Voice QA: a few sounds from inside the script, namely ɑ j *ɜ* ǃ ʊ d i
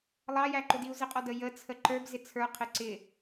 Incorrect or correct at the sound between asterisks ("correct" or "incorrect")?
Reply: incorrect